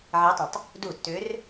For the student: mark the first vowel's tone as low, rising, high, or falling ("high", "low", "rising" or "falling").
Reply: rising